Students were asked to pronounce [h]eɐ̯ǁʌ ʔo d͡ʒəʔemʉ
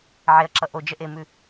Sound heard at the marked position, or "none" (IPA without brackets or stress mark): ʕ